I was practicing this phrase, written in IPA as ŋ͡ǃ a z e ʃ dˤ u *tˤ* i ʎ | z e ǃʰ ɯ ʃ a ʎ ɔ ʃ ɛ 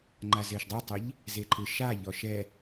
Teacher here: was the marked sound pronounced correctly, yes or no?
yes